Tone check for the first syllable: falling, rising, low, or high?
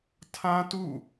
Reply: high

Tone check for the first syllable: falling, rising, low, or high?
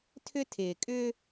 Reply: high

